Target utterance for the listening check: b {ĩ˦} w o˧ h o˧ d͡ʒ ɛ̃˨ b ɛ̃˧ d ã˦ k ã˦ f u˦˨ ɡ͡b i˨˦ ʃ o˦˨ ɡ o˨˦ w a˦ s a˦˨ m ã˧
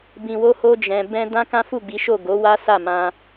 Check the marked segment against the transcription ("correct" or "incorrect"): incorrect